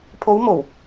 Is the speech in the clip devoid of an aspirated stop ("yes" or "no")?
no